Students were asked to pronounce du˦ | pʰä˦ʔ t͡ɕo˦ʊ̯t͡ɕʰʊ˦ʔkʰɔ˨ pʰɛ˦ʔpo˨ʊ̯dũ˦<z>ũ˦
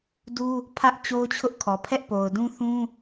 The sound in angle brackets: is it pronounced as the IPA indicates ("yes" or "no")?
no